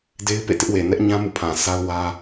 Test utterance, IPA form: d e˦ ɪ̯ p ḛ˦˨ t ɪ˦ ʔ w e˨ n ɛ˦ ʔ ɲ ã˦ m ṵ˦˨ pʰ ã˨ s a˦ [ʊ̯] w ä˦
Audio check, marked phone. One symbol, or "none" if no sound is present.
ʊ̯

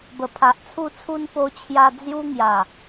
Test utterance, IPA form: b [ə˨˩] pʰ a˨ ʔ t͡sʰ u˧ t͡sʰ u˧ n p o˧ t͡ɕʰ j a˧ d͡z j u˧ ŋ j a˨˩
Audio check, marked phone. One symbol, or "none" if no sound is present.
ə˨˩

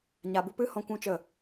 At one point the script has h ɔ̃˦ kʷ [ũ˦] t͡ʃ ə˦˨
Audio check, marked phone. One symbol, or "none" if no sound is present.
ũ˦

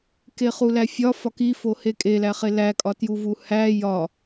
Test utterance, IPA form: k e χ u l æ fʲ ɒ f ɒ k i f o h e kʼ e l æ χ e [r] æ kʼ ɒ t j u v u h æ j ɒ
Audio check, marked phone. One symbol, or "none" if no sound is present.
l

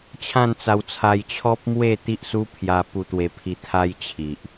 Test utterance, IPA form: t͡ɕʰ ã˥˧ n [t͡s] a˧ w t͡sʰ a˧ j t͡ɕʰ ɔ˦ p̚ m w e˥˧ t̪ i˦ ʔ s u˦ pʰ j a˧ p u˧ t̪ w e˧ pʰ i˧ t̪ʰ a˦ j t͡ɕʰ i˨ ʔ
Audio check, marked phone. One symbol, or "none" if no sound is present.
t͡s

